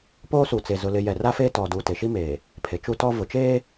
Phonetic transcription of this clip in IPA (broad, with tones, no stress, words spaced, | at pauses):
poː˦su˨t͡se˨ zʊ˨lɪ˨jɛ˨ ra˦feː˦tɔ˨du˨ te˨ʃi˦meː˨ | pʰe˨t͡ʃu˦tɔ˦ vʊ˨t͡ʃeː˦